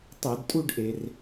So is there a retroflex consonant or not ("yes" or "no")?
yes